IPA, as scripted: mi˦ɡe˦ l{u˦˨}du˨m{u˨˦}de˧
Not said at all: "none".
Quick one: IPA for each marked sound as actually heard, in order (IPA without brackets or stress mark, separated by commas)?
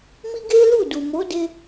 u˦˨, o˨˦